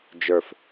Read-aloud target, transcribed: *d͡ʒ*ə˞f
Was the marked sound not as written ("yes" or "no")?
no